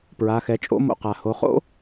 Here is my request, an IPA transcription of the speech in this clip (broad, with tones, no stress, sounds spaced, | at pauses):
p ɹ a˩˧ x ɛ˩˧ t͡ʃʼ o̰˧˥ m o̰˧ q a˩ h o˩˧ χ o̰˥